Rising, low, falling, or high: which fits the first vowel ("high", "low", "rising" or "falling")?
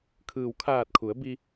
low